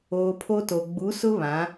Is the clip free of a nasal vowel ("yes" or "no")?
no